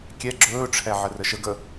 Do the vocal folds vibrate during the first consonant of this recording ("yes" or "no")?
no